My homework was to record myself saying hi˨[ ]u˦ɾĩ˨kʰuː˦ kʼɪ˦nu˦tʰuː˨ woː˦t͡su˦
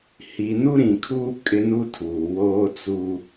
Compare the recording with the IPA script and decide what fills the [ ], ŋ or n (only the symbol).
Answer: n